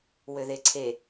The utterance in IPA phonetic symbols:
wøðeǀʰe

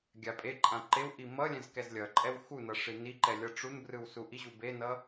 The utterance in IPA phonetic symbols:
ɡʲapʼeǃʼã ǃewʔi mʌ lʲɛ̃zkɛzlʲʌǃʼɛw xunʌ ʂiniǃɛ lʲʌʈ͡ʂunbrɯw suʔiʑu benʌ

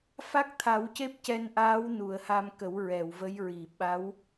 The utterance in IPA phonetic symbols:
fa˦˥k̚t̪ʰa˨˩˦wce˦˥p̚ cɛ˧nʔaː˧˥w nu˨˩˨ə̯ha˧mkə˨˩˦w ɹɛ˨˩˨wvə˧˥jɹi˨˩˨ ɓa˧˥w

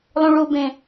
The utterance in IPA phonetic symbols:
lˠũɭubẽ

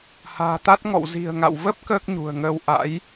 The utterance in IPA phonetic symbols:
ha̤ː˨˩t̪a˦˥t̚ŋɔ̰˧˨w zi̤˨˩ə̯ ŋa̰˧˨w və˦˥p̚ kəː˦˥k̚ɲṳ˨˩ə̯ŋəː˧w ʔa̰˧˥j

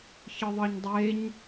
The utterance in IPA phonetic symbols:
çɯðˤɯɲdˤeɲ

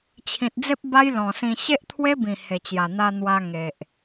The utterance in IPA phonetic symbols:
t͡ɕʰĩ˨t̚d͡ze˦p̚ ba˦jlɔ̃˨˩sĩ˧ ɕe˦ʔt̪ʰwe˦bĩ˨˩ he˨˩t͡ɕja˨˩ n̪a˧ n̪wa˧ŋe˨ʔ

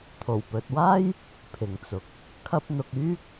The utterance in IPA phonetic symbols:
t̪ʰo˨˩wpɵ˨t̚waː˥j | pʰɪ˨ŋt͡sʊ˨˥k̚ | kʰɐ˧p̚n̪ʊ˨k̚ yː˥k̚

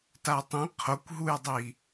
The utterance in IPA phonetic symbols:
tatˤĩ qʰokʷɦujdˤi

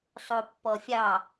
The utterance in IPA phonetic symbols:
sˤopːɔfʲɑ

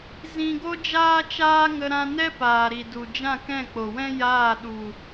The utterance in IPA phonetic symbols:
zĩ˧ɡo˦ d͡ʒaː˦t͡ʃaː˦ŋə˧ ɾã˧nɛ˦ paː˨ɾi˨ du˨ d͡ʒã˦˨kɛ̃˦˨k͡po˨wɛ̃˦ jaː˦˨ ɗu˨

